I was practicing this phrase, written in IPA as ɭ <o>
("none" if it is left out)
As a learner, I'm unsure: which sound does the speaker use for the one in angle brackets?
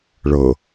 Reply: ɤ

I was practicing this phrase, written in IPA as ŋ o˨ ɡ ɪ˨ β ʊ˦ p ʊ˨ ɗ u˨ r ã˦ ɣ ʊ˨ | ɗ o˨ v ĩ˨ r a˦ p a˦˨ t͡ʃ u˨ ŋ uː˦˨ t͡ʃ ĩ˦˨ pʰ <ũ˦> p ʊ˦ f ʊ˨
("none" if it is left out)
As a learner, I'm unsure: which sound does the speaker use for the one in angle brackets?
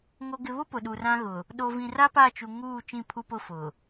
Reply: u˦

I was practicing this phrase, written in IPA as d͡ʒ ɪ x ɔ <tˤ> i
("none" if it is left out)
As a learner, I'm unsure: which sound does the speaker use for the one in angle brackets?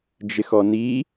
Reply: n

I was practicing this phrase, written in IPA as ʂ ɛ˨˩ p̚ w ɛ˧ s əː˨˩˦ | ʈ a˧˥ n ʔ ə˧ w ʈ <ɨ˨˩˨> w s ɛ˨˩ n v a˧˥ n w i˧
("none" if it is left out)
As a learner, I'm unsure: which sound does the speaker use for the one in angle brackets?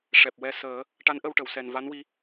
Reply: ə˨˩˨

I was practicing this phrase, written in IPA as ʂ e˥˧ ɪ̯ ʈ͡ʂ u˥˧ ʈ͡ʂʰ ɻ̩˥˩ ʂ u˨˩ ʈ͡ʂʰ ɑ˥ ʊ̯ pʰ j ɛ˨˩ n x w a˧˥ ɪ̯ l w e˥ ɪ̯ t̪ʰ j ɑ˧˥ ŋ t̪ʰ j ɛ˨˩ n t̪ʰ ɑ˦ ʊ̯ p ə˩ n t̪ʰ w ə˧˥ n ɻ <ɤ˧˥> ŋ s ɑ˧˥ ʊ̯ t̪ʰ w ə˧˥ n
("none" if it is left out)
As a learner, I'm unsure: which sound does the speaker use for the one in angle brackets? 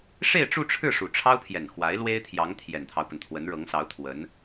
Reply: ɤ˧˥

